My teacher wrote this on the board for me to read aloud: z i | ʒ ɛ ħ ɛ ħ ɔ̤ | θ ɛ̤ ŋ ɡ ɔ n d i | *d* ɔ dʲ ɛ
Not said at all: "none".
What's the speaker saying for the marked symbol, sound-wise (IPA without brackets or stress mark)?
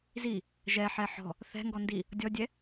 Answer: dʲ